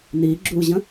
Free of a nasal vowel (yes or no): no